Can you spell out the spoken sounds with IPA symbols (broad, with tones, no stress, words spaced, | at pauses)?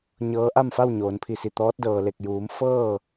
ɲɤː˧˥ʔa˥˨m fa˥˨wɲoː˩˧npʰi˧˩si˧˩ t̪ɔː˧˥t̚ dɤː˩le˧˩k̚juː˩˧m fɤː˥˨